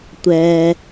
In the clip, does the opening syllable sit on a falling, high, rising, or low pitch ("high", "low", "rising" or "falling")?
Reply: low